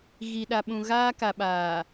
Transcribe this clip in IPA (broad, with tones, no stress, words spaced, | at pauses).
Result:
ɣi˨ɗa˨ɓũ˨ ɣaː˦ka˨ɓaː˨